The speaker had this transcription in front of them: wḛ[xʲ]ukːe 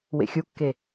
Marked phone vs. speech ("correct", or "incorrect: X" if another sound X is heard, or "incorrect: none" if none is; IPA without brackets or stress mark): correct